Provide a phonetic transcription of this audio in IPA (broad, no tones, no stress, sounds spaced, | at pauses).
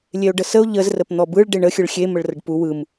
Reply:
lʲ e o̯ ɖ ə s ə o̯ ʎ ə z r ə p n̪ ɔ b ɯ ɭ ɖ e ɳ ə xʲ ɯ ɭ xʲ e m ə ɭ r ə ɖ p u w ɯ m